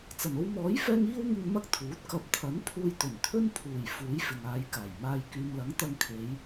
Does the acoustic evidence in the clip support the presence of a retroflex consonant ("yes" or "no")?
no